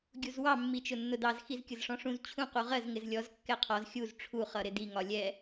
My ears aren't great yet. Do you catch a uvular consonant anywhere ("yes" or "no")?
yes